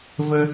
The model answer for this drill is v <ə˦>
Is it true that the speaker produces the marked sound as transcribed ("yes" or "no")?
yes